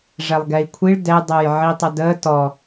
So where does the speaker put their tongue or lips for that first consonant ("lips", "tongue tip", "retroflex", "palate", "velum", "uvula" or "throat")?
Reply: retroflex